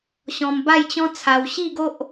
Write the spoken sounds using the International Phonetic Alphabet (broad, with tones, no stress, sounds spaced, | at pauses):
ɕ ɔ̃˧ m b a˥˧ j t͡ɕ ɔ̃˦ t͡sʰ a˧ w ɕ i˥˧ ɡ o˦ ʔ